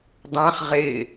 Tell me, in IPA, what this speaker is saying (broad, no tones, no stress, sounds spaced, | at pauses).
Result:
dˤ ã χ ʁ ɪː